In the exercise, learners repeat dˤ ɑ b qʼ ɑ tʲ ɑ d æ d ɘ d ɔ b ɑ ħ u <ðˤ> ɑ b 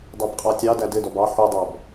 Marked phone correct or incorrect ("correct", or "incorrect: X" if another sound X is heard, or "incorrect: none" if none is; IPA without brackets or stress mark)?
incorrect: dˤ